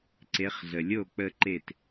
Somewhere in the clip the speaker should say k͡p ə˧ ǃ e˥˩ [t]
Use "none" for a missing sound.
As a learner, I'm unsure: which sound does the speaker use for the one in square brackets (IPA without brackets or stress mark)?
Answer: t